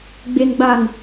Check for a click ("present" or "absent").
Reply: absent